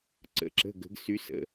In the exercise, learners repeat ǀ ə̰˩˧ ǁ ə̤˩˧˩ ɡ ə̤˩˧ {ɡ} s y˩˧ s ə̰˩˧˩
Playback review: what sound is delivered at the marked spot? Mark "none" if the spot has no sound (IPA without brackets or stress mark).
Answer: ɡ